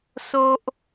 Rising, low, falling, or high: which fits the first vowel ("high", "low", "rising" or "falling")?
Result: high